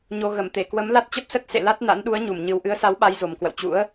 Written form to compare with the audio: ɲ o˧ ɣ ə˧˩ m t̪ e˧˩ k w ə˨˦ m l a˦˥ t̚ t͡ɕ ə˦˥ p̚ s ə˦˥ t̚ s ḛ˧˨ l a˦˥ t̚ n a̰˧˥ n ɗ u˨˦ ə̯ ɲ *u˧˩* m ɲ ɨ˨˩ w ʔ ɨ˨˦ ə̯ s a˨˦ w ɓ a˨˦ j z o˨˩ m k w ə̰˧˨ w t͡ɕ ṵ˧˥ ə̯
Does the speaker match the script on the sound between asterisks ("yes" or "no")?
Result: yes